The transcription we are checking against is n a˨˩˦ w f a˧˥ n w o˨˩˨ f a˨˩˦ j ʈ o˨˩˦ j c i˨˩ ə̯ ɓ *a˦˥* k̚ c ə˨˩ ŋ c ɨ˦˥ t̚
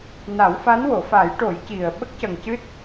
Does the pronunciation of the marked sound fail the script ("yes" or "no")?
yes